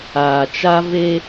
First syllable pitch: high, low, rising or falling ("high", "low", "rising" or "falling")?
low